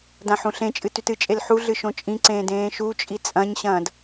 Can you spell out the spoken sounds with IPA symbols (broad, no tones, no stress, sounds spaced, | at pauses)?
d ã ħ ũ ɬ ẽ t͡ʃʼ ɨ t ʉ t ɨ t͡ʃʼ e l ħ u ɮ ɨ ʃ õ t͡ʃʼ ĩ ǀ ẽː d ẽː ʃ u t͡ʃʼ i t͡sʼ ɐ̃ ɲ ɕ ɐ̃ː d